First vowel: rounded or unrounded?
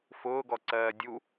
rounded